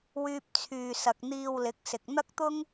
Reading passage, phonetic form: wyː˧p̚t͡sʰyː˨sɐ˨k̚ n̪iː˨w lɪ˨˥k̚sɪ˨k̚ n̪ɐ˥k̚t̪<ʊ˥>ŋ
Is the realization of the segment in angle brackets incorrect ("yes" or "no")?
no